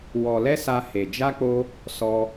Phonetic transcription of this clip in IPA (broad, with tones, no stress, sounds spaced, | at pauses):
w ɔ˧ l ɛ˦ s a˦ h e˧ d͡ʒ a˦ k͡p o˦ | s ɔ˦